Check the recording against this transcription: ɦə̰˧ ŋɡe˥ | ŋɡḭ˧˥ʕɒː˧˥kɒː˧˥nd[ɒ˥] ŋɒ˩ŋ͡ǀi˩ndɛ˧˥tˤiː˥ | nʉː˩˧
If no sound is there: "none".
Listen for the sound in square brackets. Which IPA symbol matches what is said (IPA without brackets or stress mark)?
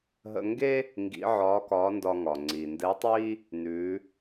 ɒ˧